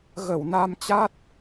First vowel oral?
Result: yes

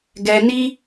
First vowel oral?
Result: yes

